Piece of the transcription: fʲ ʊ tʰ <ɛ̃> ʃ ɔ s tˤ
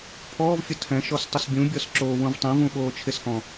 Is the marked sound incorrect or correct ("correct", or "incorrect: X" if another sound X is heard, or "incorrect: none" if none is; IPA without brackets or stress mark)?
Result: correct